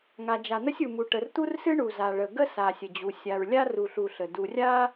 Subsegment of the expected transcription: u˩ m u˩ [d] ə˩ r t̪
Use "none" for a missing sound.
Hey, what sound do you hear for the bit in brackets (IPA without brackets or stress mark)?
ʈ